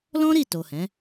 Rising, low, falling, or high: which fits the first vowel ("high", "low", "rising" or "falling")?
high